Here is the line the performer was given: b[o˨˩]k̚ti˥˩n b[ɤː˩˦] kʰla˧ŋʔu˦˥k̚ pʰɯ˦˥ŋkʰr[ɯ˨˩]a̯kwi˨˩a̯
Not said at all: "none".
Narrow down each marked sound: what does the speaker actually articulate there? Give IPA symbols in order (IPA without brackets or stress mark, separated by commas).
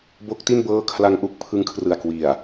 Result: o˦˥, ɤː˥˩, ɯ˨˩